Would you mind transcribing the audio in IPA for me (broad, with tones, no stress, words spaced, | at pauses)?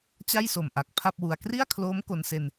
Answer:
t͡ɕa˥˩jso˨˩mʔa˨˩k̚ pʰa˥˩p̚wu˧a̯ kri˥˩a̯kʰloː˦˥m ko˧nse˧n